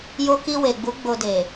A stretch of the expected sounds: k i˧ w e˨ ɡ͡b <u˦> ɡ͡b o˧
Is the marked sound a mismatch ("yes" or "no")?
yes